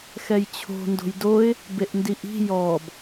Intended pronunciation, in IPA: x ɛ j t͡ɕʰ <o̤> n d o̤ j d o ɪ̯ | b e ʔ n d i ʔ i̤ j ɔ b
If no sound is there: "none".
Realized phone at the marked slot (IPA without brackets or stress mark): o̤